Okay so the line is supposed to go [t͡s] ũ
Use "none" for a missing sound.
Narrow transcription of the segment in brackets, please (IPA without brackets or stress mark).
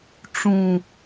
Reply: ʈ͡ʂ